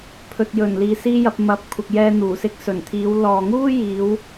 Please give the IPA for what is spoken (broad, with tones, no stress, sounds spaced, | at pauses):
pʰ ɵ˨ t̚ j ɵ˨˩ n l iː˨ s iː˥ j ɐ˧ p̚ m ɐ˨˥ p̚ kʷʰ ɪ˨ k̚ j ɛː˧ n̪ uː˨˩ s ɪ˧ k̚ s ɵ˨˩ n t̪ʰ iː˨˧ w l ɔː˨ ŋ uː˥ j iː˨˧ w